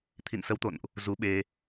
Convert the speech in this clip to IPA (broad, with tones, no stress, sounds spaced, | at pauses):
t̪ʰ ḭ˧˨ n s ə˨˦ w t̪ o̰˧˨ n ʔ | z u˨˦ ɓ e˧